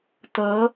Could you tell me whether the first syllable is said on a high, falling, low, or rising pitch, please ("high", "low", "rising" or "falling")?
rising